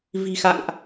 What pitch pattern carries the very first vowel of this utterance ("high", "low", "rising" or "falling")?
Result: low